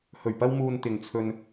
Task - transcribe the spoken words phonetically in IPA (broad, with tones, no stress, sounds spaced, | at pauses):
h ɵ˨˩ ɥ p ɐ˧ w m uː˨ n t̪ ɪ˨ ŋ t͡sʰ ɵ˧ n